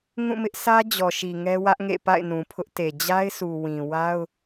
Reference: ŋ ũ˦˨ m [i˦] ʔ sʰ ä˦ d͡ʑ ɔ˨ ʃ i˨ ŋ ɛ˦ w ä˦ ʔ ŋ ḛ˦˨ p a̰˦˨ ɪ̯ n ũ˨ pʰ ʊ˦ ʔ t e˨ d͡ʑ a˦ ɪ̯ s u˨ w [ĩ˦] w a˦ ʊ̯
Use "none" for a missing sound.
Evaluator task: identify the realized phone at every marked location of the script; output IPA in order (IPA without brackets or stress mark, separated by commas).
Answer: ɪ˦, ĩ˨